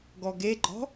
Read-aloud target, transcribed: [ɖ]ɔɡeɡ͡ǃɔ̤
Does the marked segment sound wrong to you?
yes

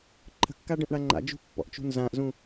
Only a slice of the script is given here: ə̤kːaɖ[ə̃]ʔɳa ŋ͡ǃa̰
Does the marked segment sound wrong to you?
no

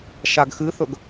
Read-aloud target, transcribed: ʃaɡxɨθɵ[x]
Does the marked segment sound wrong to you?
yes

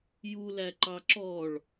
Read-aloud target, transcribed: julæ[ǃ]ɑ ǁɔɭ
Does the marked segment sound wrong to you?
no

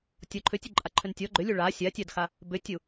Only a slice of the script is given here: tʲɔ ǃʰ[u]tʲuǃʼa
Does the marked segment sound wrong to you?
yes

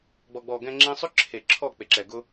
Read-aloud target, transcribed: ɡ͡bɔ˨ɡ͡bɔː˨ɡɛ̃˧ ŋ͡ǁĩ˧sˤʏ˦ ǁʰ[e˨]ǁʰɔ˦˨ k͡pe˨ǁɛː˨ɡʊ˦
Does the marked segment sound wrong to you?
no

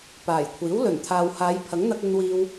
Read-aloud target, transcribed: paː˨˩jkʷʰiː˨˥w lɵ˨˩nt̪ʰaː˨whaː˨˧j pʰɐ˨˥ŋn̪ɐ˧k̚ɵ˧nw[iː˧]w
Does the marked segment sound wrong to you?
no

